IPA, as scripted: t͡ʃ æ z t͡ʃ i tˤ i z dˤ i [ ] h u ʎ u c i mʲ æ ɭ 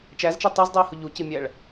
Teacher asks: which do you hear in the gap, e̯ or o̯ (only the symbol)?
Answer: e̯